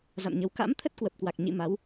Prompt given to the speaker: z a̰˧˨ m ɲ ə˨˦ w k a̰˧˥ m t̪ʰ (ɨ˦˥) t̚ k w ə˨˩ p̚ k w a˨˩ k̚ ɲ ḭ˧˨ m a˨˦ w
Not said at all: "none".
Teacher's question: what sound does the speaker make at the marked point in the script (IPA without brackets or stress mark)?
ə˦˥